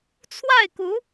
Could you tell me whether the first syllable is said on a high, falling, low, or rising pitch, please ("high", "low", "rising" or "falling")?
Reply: falling